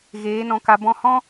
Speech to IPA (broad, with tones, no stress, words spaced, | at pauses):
ɣeː˨˦nɔ̃˧ka˧ bɔ̃˧hɔ̃˦